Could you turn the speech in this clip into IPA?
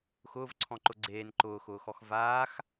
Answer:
xʊːvǀʰɔ̃ǃʊ ɡ͡ǀeːn ǃʊːxʊːxɔx vaːx

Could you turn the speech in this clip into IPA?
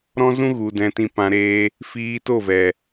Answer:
ɾɔ̃˦zũ˦ɣu˨ dɛ̃˧tĩ˧pã˧ ɾeː˦ | fiː˧toː˦˨vɛ˨

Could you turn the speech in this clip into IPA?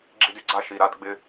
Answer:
ɡ͡ǁi˧dy˨ɡ͡ǀa˧ ʃi˨ɾa˦d ɡ͡bɪ˧

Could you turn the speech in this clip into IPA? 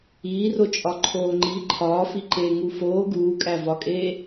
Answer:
iːro t͡ʃʼɒǃʰoːŋ͡ǃi ǃʰɒːfiǃeː ŋufoː ɡuːkʼævɒkʼeː

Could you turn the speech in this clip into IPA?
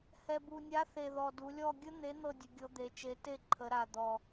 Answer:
hɛ˨˩bu˨˩nʲa˨˥θe˨˩ ðɔ˨˩du˩˧lʲɔ˦˨ ɡʲə˦˥ n̪e˨˥ n̪ɤ˦˨dʲə˩˧ ɡʲɤ˨˥d̪e˩˧t͡ʃe˨˥ te˦˨ǃʰə˩˧ɾa˨˩ d̪ɔ˨˩

